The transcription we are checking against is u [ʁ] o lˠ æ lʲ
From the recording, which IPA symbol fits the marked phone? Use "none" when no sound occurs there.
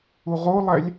ʁ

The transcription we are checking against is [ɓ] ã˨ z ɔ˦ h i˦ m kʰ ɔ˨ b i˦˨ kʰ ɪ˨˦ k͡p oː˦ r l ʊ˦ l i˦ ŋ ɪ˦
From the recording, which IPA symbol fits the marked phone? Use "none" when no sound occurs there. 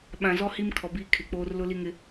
ɓ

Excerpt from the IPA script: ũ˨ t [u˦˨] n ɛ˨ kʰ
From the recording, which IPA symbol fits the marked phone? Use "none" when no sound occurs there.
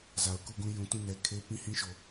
ũ˦˨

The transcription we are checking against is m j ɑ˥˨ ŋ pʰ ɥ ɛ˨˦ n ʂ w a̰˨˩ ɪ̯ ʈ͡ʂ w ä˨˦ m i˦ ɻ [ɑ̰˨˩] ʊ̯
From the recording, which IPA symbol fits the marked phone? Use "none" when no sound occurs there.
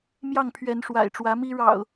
ɑ̰˨˩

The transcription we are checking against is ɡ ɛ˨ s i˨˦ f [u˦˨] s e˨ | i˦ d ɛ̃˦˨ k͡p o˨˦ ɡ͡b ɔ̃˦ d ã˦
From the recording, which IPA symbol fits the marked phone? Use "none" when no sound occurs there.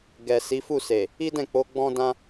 u˦˨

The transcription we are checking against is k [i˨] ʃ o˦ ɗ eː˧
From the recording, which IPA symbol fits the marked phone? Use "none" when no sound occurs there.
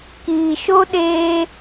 iː˨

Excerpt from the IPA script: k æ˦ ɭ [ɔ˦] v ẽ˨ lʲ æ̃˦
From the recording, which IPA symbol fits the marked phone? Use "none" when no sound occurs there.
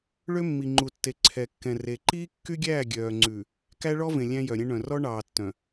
ɔ˦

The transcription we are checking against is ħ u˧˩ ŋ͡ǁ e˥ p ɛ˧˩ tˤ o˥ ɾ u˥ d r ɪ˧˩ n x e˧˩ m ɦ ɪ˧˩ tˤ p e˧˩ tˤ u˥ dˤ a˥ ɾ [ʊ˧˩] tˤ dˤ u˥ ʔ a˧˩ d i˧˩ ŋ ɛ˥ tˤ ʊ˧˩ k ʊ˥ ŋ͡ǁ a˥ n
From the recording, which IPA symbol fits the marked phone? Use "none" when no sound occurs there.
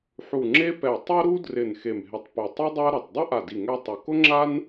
ʊ˧˩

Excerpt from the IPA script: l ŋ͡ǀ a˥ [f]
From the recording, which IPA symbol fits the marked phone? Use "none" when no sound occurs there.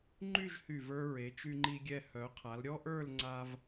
v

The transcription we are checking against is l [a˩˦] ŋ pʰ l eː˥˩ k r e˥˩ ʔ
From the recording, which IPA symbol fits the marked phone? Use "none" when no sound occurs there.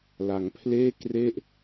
a˩˦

